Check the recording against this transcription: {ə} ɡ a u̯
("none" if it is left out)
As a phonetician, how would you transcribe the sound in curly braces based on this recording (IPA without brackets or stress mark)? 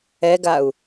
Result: ɛ